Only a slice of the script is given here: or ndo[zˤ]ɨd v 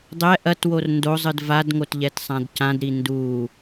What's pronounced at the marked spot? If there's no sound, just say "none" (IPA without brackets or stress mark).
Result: zˤ